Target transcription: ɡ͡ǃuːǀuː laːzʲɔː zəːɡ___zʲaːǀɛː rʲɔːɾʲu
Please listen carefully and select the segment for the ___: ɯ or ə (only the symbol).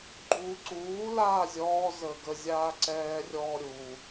ə